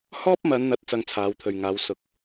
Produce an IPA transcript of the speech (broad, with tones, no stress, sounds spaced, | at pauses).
h ɔː˥ p̚ m ɐ˨˧ n n̪ ɐ˨˥ t̚ t͡s ɐ˧ ŋ t͡sʰ aː˨˧ w t̪ʰ ɵ˨ ɥ ŋ aː˨˧ w s ʊ˧ k̚